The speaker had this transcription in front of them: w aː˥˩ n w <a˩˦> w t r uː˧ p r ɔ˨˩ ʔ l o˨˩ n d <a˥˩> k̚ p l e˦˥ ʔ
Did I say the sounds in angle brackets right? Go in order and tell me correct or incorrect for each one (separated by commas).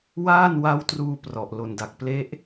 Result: incorrect, incorrect